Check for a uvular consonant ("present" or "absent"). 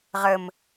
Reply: present